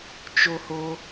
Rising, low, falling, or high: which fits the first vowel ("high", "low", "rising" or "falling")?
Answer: high